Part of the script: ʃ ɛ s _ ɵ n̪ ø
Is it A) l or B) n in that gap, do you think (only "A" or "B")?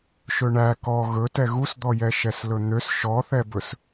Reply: A